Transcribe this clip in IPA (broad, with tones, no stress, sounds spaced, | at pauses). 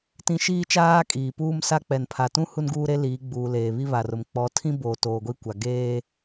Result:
t ĩ˦ ʃ iː˦ t͡ʃ aː˦ kʼ iː˨ p uː˦ m s a˦ k͡p ɛ˨ n pʰ a˨ t ũ˦ h u˦ n ɡ uː˦ ɾ e˦ l iː˨˦ ɡ͡b uː˨ l eː˨ β i˦ β a˨ r ʊ˨ m k͡p ɔ˨˦ tʰ ĩ˦ b o˨ t oː˨ ɡʷ i˦ kʷ a˨ ɡ eː˦